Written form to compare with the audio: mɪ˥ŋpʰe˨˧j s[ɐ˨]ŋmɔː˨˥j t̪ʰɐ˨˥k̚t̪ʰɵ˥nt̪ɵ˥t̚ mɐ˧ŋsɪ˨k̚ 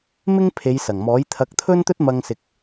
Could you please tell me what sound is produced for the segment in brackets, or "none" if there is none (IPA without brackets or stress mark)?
ɐ˨˩